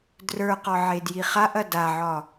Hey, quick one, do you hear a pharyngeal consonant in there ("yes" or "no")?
yes